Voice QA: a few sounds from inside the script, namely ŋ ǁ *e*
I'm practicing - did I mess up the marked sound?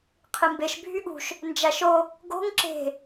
yes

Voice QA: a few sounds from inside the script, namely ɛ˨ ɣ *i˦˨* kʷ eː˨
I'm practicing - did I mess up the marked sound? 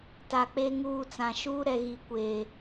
yes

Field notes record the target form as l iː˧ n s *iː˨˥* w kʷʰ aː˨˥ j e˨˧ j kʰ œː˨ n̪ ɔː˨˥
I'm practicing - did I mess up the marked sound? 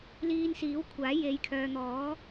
no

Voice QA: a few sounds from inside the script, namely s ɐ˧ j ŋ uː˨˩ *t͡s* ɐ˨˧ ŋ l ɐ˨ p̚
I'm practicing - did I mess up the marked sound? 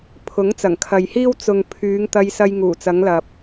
no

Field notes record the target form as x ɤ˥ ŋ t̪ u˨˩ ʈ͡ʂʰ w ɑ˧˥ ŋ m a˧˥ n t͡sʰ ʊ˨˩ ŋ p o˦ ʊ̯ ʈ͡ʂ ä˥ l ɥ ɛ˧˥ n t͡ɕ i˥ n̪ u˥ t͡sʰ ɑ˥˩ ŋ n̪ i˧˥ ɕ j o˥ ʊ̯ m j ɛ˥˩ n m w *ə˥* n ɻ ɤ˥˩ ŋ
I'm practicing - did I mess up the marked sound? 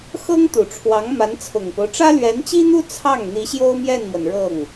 yes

